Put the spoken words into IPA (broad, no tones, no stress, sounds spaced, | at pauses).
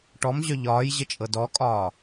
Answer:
ʈ ɔ m ʑ œ ʎ ɒː j ʑ ə t͡ʃʼ ɤ d ɔ kʼ ɒː